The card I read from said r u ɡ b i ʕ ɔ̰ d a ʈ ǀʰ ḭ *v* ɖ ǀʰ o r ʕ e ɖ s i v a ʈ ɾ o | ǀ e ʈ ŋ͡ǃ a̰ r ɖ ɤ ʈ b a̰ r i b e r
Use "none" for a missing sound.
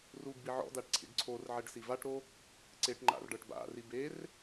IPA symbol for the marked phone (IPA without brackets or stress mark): none